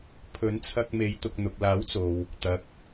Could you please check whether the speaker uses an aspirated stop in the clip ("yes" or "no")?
yes